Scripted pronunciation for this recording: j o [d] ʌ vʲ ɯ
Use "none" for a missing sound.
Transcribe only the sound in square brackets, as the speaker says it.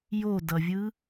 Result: d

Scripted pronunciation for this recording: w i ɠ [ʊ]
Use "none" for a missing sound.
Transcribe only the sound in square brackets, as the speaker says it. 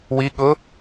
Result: ʊ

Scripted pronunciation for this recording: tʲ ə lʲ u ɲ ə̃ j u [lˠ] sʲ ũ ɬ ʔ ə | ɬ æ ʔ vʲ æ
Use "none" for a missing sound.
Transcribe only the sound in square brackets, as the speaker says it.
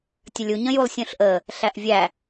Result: lˠ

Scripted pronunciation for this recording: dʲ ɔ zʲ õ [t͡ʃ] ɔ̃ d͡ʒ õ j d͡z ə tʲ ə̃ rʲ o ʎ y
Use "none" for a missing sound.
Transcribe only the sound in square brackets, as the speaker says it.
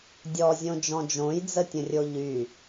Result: d͡ʒ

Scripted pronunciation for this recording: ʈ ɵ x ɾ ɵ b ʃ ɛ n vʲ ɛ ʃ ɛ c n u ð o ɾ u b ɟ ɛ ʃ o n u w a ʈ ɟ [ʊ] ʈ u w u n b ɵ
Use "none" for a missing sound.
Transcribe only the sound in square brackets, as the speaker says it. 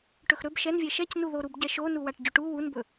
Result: ɵ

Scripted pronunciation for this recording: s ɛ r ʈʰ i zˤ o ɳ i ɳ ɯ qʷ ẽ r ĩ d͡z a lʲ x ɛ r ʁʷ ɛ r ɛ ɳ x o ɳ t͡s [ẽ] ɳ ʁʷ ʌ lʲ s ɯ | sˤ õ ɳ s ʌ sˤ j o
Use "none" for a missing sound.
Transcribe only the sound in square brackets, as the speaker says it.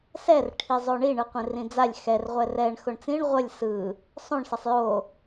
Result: ĩ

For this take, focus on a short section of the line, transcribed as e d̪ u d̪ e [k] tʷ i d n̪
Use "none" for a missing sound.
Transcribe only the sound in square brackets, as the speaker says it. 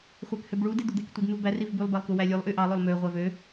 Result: k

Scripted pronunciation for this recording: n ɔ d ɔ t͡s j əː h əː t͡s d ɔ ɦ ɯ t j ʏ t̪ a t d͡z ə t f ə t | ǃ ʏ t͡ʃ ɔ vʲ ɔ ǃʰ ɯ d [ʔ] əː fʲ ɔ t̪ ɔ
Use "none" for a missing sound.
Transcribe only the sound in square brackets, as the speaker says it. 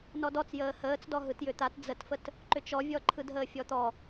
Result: ɦ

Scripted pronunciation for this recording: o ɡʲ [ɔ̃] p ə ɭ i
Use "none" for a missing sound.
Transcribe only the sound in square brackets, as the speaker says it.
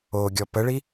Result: ɔ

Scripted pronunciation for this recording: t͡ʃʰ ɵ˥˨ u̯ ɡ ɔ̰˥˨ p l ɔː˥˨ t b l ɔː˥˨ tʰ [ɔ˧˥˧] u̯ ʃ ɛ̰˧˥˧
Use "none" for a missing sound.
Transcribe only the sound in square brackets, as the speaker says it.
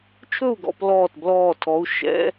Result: ɔ˧˥˧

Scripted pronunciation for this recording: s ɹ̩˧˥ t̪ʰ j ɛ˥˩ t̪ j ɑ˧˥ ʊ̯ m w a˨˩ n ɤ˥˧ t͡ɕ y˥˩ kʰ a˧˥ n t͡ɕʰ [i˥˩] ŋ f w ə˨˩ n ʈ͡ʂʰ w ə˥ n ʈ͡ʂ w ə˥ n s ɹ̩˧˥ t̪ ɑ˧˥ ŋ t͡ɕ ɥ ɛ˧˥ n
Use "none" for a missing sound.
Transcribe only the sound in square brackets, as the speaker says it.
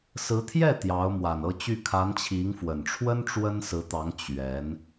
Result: i˧˥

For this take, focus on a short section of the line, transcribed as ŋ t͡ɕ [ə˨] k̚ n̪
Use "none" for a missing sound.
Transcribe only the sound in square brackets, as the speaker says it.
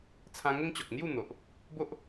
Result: ɔ˨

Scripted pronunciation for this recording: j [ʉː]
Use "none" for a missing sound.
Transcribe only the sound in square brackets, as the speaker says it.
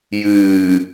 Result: ɨː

